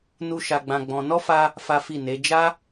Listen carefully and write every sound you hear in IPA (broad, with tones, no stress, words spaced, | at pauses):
nu˦ʃa˧ɡ͡bã˧ɡ͡bɔ̃˧ nɔ˦fa˧ | fa˦fi˦˨ne˨˦ d͡ʒa˦